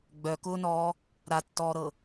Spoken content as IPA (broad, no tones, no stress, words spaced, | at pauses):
ɡ͡bœkʊːnɔː | ɾatːɔːɾɤ